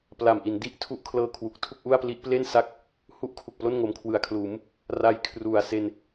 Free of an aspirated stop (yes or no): no